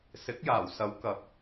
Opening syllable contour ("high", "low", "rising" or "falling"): rising